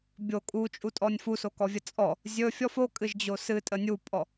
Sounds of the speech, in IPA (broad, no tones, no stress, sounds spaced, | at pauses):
bʲ o kʼ u t͡ʃʼ u tʼ ɔ nʲ f u s o k ɔ vʲ ə t͡sʼ ɔ | zʲ ɵ fʲ ɔ f o kʼ ɨ ʒ d͡ʑ o s ɨ tʼ ə nʲ u pʼ ɔ